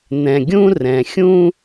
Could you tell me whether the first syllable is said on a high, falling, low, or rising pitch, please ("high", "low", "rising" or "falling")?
low